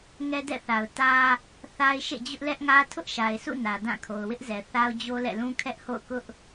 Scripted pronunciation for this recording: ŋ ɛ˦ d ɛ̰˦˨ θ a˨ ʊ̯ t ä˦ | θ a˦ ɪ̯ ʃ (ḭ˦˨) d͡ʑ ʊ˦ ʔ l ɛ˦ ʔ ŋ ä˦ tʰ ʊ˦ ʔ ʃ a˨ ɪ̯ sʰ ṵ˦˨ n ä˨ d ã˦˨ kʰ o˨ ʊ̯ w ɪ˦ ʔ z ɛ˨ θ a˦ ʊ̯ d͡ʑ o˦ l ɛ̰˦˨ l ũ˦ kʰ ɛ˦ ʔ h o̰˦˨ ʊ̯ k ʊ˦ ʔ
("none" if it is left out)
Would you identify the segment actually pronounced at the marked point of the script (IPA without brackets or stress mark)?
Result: ḛ˦˨